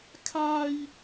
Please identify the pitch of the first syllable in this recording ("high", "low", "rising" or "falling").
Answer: high